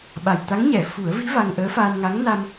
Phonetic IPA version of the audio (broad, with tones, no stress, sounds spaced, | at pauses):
ɓ a˨˩ j t̪ a˧˥ ŋ ɲ ɛ˨˩˨ f u˨˩˦ ə̯ v i˧˥ v a˧ ŋ ʔ əː˧˥ f aː˧ n ŋ a˧˥ ŋ n a˧ m